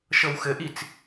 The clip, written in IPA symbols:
ʃ ɤ w x ɘ ʔ i t͡s

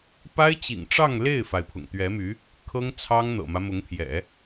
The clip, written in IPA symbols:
p a˥ ɪ̯ t͡ɕ ḭ˨˩ ŋ ʈ͡ʂ ɑ˥˧ ŋ l e˥˩ ɪ̯ f a˩ ɪ̯ pʰ ʊ̰˨˩ ŋ t̪ ɥ ɛ˧˥ m y˧˥ | kʰ ɤ˥ ŋ t͡sʰ ɑ˥ ŋ n̪ ɤ̰˨˩ m ä˦ m ʊ˧˥ ŋ pʰ j ɛ̰˨˩˦

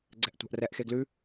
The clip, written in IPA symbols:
ɡ͡ǀ ɛ̤ ʔ tʷ a̤ ʔ r ɛ ʔ x e ɡ l ʉ

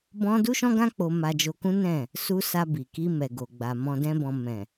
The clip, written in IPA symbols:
b ɔ̃˦ d u˦ ʃ ɔ̃˦ ɡ ã˦ k͡p o˧ m a˧ d͡ʒ o˧ k ũ˦ n ɛ̃˦˨ | s u˦ s a˧ b i˨ k i˧ m ɛ˨ ɡ o˨ ɡ͡b a˨ m ɔ̃˧ d ɛ̃˦ b ɔ̃˧ m ɛ̃˨

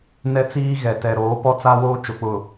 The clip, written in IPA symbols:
n ɛ˦ t͡s iː˦ ɣ ɛ˨ t ɛ˨ ɾ oː˨˦ p ɔ˦ t͡s a˦ w oː˦ t͡ʃ ʊ˨ k͡p ʊ˨

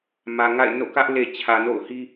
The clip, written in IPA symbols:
m ä˨ ŋ a̰˦˨ ɪ̯ n o̰˦˨ k ä˦ ʔ l e˨ t͡ɕʰ ä˨ n o̰˦˨ ʊ̯ h i˦

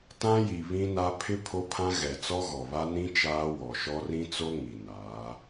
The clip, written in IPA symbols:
t ã˦ j i˨ β ĩ˦ n a˦ pʰ ɪ˦ pʰ o˦ pʰ ã˦ ɣ ɛ˨ t͡s ɔ˦ ɣ ɔ˨ β a˦ n ĩ˦ t͡ʃ aː˦ w ɔ˨ ʃ ɔ˦ r ĩ˦ t͡s o˦ ŋ i˨ n aː˨˦

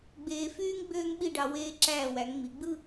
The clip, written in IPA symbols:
ɡ͡b eː˧ f yː˥ ŋ ɡ͡b øː˥ ŋ ɓ i˥˧ ɖ ɑ˧ w eː˧ ǁ æː˧˩ w æ˩˧ ŋ ŋ͡m i˩˧ ɡ͡b ɯ˥˧

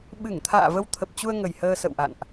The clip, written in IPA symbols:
ɓ ɨ˧˩ ŋ t̪ʰ a̰ː˧˨ v ə˧ w t̪ʰ ə˨˩ p̚ t͡ɕ u˧ ə̯ ŋ ə˨˩ j h əː˧ s ə̰˧˨ w ʔ a̰˧˨ n ʔ

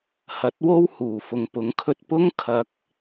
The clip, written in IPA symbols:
h ɐ˨˥ t̚ w o˥ w h uː˨˩ f ʊ˨ ŋ p ʊ˨˥ ŋ kʰ ɵ˧ t̚ p ʊ˥ ŋ kʰ ɐ˨˥ k̚

